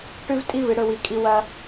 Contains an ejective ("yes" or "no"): yes